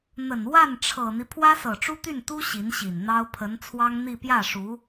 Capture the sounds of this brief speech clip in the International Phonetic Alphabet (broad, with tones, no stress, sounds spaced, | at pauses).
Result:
n̪ ə˨˩ n w a˥˩ n ʈ͡ʂʰ ɤ˨˩ n̪ i˦ pʰ w ä˥ s ɤ˨˩ ʈ͡ʂ u˥ t̪ y˥˩ n t̪ u˥ ɕ i˧˥ n ɕ i˨˩ n n̪ ɑ˥ ʊ̯ pʰ ə˧˥ n t͡sʰ w ɑ˥ ŋ n̪ i˥˧ p j ä˥˩ ʂ u˧˥